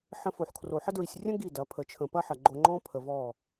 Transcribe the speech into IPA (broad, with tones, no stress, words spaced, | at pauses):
ħə̃˧fo˨ħkʰro˨ħə˦ dɹi˨sʲrʲə̃˦ ɡi˦˨dɐ˨˦pʰə˨˦ t͡ʃʰə̃˨ pɐ˦ħɐ˨ɡ͡ǃo˧ŋ͡ǃɔ̃˦ pʰə˨vɔ˦˨